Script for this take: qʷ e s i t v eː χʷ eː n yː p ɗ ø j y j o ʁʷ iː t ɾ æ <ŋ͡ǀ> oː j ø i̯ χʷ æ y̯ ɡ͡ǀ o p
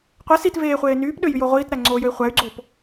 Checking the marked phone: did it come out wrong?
no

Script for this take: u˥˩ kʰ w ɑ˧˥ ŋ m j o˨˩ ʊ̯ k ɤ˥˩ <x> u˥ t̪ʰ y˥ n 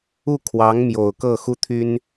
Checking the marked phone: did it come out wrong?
no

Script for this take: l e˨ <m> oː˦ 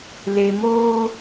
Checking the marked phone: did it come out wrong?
no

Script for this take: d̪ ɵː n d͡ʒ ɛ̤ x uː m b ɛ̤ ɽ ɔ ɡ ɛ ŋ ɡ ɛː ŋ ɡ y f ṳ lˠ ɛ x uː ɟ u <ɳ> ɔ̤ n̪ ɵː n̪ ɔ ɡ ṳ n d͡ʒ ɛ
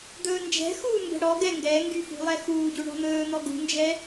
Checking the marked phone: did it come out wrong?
no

